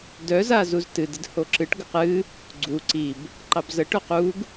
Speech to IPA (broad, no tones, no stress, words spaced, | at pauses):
dœ zazuztɨd ɨdhoǁɨʈ ɡəqɨ | ɡ͡ǀu ǀib | ǃɑbzə ʈœquɡ